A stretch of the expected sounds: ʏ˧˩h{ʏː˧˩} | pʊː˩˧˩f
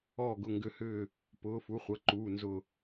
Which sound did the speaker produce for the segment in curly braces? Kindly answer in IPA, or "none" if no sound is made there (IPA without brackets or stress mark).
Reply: ʏː˧˩